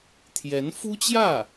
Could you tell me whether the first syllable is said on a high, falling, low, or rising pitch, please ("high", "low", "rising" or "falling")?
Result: rising